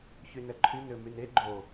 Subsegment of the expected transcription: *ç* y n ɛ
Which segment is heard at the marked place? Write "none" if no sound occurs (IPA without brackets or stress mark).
ç